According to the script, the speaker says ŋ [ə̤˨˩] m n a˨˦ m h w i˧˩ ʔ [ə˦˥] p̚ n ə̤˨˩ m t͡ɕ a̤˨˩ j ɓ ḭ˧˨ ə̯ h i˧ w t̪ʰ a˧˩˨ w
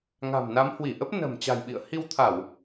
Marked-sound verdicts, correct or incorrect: incorrect, correct

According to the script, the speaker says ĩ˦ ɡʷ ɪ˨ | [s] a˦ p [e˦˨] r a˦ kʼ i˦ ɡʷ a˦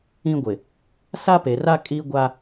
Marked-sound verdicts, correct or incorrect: correct, incorrect

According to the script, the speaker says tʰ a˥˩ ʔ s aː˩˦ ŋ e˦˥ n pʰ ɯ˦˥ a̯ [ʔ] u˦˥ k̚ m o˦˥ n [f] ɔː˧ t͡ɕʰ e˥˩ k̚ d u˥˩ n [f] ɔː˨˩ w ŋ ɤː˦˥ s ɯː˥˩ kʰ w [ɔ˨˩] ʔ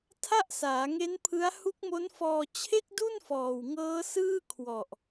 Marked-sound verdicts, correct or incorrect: incorrect, correct, correct, correct

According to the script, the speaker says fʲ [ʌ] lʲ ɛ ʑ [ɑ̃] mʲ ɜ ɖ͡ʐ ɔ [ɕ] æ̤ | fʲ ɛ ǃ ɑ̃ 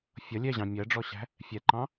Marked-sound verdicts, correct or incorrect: correct, correct, correct

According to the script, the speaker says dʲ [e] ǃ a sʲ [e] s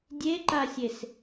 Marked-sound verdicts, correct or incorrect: correct, correct

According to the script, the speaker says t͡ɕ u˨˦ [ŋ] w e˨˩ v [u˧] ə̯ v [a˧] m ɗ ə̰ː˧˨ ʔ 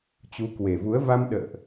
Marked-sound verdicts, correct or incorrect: incorrect, incorrect, correct

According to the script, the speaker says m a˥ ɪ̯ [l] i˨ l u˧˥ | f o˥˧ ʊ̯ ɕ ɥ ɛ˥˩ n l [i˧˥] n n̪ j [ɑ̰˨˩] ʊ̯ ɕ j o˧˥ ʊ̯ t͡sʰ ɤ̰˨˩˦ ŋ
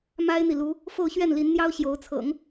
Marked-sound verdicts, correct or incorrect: incorrect, correct, incorrect

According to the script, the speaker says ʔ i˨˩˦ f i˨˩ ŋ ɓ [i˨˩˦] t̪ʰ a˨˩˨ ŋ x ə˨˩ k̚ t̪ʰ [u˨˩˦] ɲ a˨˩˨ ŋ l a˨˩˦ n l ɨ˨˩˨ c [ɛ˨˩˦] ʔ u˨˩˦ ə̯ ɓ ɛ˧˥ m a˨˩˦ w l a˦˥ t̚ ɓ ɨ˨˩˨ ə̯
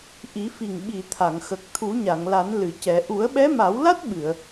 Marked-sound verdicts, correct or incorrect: incorrect, correct, correct

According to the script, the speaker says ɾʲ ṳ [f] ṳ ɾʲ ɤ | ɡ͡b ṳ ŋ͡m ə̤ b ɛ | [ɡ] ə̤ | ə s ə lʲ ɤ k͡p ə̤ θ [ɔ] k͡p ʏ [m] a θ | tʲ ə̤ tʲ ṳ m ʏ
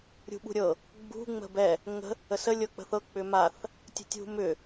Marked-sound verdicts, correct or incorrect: incorrect, incorrect, incorrect, correct

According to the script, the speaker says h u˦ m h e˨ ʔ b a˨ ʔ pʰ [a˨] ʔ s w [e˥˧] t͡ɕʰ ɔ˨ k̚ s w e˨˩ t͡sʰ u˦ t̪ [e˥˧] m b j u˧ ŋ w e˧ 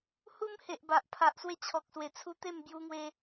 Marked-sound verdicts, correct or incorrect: correct, correct, correct

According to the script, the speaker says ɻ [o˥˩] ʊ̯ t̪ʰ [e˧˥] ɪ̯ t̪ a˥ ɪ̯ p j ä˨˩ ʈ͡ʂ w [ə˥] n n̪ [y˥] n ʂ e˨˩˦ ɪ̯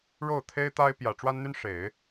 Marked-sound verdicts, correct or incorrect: correct, incorrect, incorrect, correct

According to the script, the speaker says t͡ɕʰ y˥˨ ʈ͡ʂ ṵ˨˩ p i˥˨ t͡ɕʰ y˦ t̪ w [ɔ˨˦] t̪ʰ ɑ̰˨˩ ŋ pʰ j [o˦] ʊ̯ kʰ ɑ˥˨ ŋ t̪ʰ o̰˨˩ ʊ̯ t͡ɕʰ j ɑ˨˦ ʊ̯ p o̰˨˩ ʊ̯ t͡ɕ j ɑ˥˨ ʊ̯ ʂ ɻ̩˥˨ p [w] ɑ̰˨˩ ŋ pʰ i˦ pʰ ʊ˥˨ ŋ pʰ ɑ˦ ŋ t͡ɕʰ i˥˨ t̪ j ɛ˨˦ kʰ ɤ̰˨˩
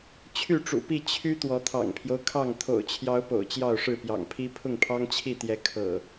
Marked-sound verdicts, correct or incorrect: correct, correct, incorrect

